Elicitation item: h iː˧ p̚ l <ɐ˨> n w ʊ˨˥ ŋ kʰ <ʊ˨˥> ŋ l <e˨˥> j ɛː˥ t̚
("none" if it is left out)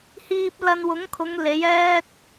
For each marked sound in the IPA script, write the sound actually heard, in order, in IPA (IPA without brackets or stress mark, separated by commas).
ɐ˧, ʊ˨˧, e˨˥